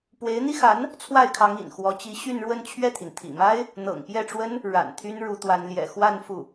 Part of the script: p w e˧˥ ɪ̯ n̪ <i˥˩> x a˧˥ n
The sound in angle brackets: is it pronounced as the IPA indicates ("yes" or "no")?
no